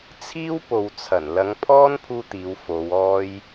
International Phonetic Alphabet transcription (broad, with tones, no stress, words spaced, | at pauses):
t͡sʰiː˥wpo˨wt͡sʰɐ˨˩n lɐ˨˧ŋpʰɔː˥n pʰuː˥t̪iː˨˧wfo˨˧w ɔː˧j